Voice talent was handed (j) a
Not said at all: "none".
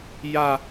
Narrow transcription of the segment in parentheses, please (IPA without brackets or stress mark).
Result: j